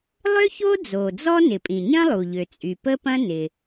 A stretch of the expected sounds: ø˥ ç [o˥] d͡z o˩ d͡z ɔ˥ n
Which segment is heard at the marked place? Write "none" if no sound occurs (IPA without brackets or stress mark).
o˥